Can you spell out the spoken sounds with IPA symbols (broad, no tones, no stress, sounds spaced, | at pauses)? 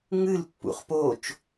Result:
ŋ ɨ l pː ṵ χ p o t͡ʃ